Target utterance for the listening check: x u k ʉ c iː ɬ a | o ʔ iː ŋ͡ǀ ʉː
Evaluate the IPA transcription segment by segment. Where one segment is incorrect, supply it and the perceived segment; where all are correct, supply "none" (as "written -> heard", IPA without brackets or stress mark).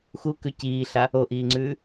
none